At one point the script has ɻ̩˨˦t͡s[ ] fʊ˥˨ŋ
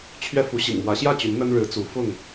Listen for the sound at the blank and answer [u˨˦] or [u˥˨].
u˨˦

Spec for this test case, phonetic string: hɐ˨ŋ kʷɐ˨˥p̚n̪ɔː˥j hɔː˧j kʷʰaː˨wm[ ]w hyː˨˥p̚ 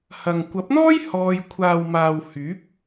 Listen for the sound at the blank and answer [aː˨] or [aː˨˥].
aː˨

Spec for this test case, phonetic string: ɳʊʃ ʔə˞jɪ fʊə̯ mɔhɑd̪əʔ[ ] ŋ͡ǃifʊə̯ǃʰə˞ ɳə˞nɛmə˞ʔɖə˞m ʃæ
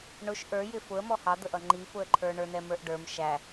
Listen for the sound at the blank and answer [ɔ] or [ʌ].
ʌ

